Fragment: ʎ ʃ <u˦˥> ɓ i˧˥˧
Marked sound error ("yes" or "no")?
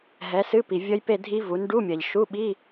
yes